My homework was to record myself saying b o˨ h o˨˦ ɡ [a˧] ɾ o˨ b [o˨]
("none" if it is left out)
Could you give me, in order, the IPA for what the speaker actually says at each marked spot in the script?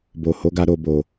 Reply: a˧, o˨

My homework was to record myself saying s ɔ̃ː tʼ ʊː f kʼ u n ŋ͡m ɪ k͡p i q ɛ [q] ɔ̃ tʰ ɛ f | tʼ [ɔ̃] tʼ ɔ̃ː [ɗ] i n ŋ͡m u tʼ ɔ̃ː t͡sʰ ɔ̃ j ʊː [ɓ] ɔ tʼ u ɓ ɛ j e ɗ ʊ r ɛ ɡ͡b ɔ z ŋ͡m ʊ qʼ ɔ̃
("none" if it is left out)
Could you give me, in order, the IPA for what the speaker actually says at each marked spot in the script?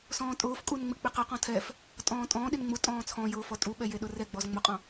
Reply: q, ɔ̃ː, ɗ, f

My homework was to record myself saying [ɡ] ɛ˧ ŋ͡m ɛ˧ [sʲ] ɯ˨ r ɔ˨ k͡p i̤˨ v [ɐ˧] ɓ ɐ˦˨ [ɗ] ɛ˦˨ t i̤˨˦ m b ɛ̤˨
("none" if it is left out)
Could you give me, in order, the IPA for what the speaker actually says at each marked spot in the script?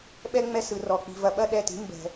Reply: ɓ, s, ɐ˨, ɗ

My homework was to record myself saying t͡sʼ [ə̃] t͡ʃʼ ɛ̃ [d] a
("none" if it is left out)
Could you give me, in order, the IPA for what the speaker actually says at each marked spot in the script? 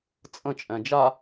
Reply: ə̃, d͡ʒ

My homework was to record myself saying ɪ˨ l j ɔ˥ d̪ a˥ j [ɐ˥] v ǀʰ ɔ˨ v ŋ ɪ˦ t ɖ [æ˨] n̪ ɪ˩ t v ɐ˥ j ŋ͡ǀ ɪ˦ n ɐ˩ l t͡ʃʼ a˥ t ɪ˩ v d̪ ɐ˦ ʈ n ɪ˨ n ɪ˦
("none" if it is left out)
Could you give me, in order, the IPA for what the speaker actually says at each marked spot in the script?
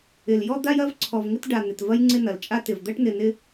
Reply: ɐ˥, a˨

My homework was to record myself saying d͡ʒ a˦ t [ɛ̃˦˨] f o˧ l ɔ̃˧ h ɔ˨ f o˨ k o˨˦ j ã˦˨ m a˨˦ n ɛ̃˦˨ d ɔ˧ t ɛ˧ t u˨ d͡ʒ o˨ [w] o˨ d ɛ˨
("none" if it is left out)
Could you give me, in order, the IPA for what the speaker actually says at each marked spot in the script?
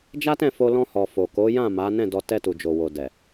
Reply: ɛ̃˦˨, w

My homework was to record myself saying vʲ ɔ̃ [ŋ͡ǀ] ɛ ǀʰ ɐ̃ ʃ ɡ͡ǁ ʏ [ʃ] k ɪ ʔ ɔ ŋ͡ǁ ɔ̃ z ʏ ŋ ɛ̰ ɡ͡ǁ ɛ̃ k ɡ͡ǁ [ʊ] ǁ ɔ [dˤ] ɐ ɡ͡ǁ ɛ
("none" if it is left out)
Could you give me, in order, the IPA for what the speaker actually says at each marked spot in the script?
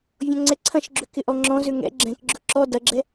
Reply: ŋ͡ǀ, none, ʊ, d

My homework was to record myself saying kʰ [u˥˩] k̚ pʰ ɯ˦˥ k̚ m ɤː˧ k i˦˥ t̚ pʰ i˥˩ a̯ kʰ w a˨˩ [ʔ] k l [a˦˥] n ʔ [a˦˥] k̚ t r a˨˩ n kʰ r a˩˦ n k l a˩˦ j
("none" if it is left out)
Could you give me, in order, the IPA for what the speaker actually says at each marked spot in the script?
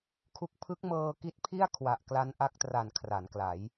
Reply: u˦˥, ʔ, a˦˥, a˦˥

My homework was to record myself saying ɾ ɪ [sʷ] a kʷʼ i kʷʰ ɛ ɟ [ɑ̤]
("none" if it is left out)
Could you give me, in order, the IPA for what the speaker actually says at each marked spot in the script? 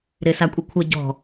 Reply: s, ɔ̤

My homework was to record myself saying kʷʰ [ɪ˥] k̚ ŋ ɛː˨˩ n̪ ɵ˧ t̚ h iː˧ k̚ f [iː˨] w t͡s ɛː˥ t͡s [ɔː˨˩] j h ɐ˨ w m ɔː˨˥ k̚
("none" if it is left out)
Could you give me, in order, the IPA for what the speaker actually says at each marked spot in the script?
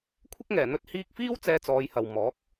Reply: ɪ˥, iː˥, ɔː˨˧

